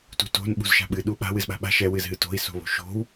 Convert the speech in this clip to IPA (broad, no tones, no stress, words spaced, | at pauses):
tṳto̤n ɓṳzʃa̤ɓɨ ɗuɓa̤ wɨzɓa̤ɓa̤ ʃɛ wɨzɦɨto̤i̯ so̤βo̤ʃo̤w